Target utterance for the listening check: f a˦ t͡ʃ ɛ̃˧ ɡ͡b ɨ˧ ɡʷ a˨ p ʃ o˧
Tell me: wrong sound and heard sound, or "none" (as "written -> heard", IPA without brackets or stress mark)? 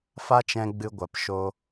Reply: none